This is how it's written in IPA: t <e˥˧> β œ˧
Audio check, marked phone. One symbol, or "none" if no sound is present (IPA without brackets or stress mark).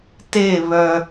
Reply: e˥˧